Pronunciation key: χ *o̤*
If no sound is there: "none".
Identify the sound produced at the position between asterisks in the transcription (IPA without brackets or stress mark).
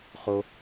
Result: o